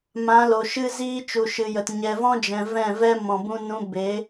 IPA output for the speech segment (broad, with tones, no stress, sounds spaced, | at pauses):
m ã˨˦ l o˨ ʃ ɨ˦ z iː˦ t͡ʃ u˨ ʃ ɨ˨ j ə˨ t ɲ ɛ˨ v ɔ̃˦ d͡ʒ ɛ̃˨ v ɛ̃˦˨ v ɛ˦ m ɔ̃˨ b ũ˧ n ũ˧ b e˨˦